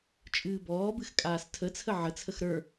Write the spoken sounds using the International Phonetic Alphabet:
t͡ʃʼ ɨː b ɔː b ɨ x kʼ aː s tʰ ə t͡sʰ ə ʕ ə t͡sʰ ə x ɾ ə˞

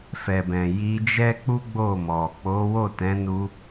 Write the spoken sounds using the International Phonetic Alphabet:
f ɛ˨ b ɛ̃˨ j i˧ d͡ʒ ɛ˦ k͡p u˦ ɡ͡b o˦˨ m ɔ˨ k͡p o˨˦ w o˦˨ t ɛ̃˨˦ n u˧

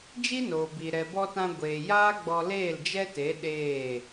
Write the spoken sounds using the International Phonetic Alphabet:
d͡ʒ i˦ n oː˨ b i˨ ɾ ɛ˨ b ɔ˧ t ã˧ ɡʷ eː˨ j aː˦ ɡ͡b ɔ˧ l eː˦˨ l d͡ʒ ɛ˦ t e˨˦ ɗ eː˦˨

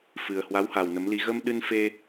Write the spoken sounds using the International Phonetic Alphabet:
f ɨ˨˩ ə̯ h w a˨˦ w h a˨˩ w n ə˨˦ m l i˧ ɣ ə˧ m ɗ ɨ˧ n f e˧

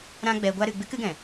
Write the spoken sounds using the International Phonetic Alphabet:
ɾ ã˦ ɡ͡b ɛ˧ ɡʷ a˦ ɾ ɨ˧ ɡ͡b ɨ˦ k ɨ˨˦ ɡ ɛ̃˨

